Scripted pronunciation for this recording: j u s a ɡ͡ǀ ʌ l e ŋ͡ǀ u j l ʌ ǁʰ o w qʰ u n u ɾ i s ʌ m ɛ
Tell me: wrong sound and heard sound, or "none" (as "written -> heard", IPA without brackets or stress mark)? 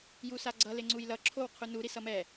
none